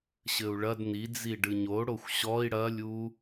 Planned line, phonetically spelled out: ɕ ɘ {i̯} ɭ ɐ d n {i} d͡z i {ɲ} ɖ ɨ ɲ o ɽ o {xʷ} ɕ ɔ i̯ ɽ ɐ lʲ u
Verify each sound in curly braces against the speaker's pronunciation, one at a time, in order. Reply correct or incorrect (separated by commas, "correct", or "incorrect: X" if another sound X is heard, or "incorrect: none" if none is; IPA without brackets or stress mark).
incorrect: u̯, correct, incorrect: none, correct